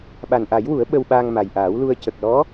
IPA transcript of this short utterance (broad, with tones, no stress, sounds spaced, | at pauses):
ɓ a˨˩ n ʔ a˨˩˦ j w u˨˩˦ ə̯ ɓ ə˧ w ɓ aː˧ ŋ m a˨˩ j ʔ aː˨˩˦ w l u˧ ə̯ c ə˨˩ k̚ l ɔ˧˥